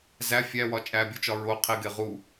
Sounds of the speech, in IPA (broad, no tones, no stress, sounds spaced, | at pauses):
z æ fʲ æ w ɒ t͡ʃʼ æ bʲ o t͡ʃ ɒ ɹ o qʰ i ɡ e ʁ u